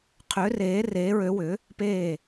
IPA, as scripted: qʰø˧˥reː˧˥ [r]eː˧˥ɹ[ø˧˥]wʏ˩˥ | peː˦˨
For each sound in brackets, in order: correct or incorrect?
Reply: correct, correct

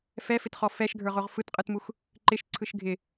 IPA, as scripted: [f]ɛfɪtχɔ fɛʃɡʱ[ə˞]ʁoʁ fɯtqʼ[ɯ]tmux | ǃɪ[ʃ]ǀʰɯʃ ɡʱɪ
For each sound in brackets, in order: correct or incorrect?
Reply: correct, correct, correct, correct

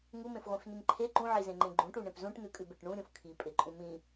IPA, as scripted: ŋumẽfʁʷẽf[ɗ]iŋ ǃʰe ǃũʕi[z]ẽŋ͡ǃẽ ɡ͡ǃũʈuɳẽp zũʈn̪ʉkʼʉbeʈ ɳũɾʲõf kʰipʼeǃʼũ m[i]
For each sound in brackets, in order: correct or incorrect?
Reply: incorrect: n, correct, incorrect: ĩ

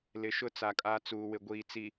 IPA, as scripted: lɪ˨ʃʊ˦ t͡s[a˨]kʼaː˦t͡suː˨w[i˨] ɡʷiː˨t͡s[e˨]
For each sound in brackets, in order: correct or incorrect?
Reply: correct, incorrect: ɪ˨, incorrect: i˨

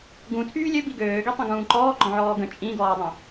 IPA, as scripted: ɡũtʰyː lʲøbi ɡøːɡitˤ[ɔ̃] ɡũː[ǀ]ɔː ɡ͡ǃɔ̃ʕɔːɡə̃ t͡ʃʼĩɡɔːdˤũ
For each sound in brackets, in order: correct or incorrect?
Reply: incorrect: ə̃, incorrect: ǃ

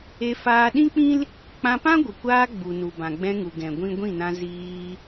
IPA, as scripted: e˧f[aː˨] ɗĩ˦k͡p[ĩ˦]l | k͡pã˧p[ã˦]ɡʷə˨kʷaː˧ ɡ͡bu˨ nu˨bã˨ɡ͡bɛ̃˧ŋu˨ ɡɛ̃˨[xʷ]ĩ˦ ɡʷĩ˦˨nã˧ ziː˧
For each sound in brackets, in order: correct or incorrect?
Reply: incorrect: aː˧, correct, correct, incorrect: ɡʷ

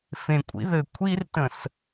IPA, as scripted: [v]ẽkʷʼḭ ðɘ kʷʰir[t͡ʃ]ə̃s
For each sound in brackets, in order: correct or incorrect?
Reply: incorrect: f, incorrect: t

